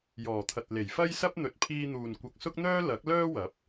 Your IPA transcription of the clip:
jɔː˨˩t̪ʰɐ˨t̚ le˨˩jfɐ˥jsɐ˥p̚ n̪ɵ˨t̚pʰiː˧n̪uː˨n kʷɐ˨k̚ sʊ˥k̚n̪œː˥ lɐ˨˥k̚ lœː˥wɐ˨˥p̚

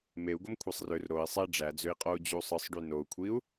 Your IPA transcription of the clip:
meu̯ ɡomkʷʰesˤrør ɾoi̯ sˤe ɖ͡ʐæd͡zøi̯qʼou̯ d͡ʑusˤɯsˤɖy nou̯kʷʰiu̯

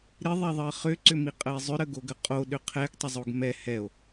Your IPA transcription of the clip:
ɾɪðˤɛðˤɜ χʏǀʏmiqʼəe̯ zˤʏɾəɡoɡə qʼoɗʏ qʰɛɡtˤɪzˤoɡ mɛ hɛo̯

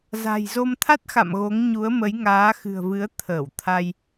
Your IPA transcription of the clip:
za̤˨˩jzo˧m t̪ʰa˦˥t̚xa̰˧˨m ɣo˨˦ŋɲu˨˦ə̯ mə˨˦j ŋaː˨˦xɨ̤˨˩ə̯vɨ˨˦ə̯ t̪ʰəː˧˩wt̪ʰa˧j

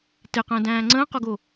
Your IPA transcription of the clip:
teqə̃ːdæ̃ː ŋ͡ǀə̃ːqoɡo

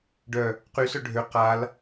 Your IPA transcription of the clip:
ɖœ | qysœ ɖʱø qal

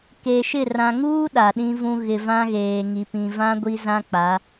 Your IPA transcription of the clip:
ke˨ʃɪ˦˨ rã˨ŋuː˦ ɗa˨ɗĩ˦vũ˦ ɣɪ˨vã˦ɣeː˨ŋi˨ pĩ˨vã˦ ɡʷi˦zã˦k͡pa˨˦

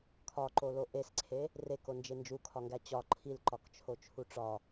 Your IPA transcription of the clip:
kʰɒǃolo ʔesǀʰe | rekond͡ʒe nd͡ʒukʰɒŋɡæ t͡ɕɒ ǃʰilǃɒkt͡ʃʰot͡ʃʰu ʈ͡ʂɒ

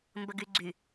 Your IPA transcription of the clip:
mbəɡyɡ͡ǀy

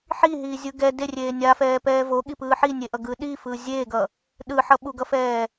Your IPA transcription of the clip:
ħiɦiːzʲɯ ɡɛ derʲeː nʲafɛːpɛː voɠipɯː ħinʲeʔʌɡɯː ɗifɯː zʲeːɡʌ | ɗɯħʌ ɓuɡʌfɛː

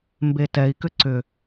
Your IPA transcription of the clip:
mbetɛi̯kʏ ǀʏ

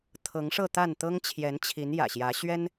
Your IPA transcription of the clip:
t̪ʰɤ˨˦ŋʂɤ˥˨t̪a˥˨n t̪ɤ˦ŋt͡ɕʰjɛ˨˦nt͡ɕʰi˨˦n jä̰˨˩ɕjä˨˦ ɕɥɛ˦n

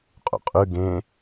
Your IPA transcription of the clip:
qʼṵqʼʉ ɡẽ

